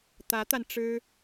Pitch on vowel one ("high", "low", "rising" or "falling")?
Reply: rising